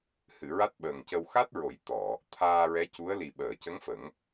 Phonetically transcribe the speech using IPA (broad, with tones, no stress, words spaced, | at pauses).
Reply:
hɨ˨˩˨ ɹa˦˥t̚ɓəː˨˩ŋcə˧w xa˦˥t̚ɹo˨˩˦j t̪ɔ˨˩˨ | t̪ʰaː˧ɹɛ˧˥ cu˧˥ə̯ li˨˩ɓəː˨˩˨cə˧˥ŋ fə˨˩˦ŋ